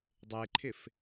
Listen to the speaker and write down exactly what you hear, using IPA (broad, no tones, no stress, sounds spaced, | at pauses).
dˤ e ǃʰ ɪ f